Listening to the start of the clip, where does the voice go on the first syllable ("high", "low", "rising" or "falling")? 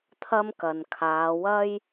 high